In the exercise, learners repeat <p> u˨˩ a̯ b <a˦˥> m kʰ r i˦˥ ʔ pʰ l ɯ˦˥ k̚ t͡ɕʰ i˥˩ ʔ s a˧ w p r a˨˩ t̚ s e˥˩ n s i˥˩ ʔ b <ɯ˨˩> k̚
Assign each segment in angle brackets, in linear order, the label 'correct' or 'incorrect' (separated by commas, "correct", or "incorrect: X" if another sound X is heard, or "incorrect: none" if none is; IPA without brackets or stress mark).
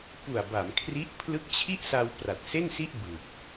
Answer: correct, incorrect: a˩˦, correct